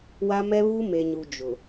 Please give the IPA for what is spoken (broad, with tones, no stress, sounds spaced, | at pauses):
w a˦ m ɛ˦ β u˦ m e˨ ɲ u˨ d͡ʒ ʊ˨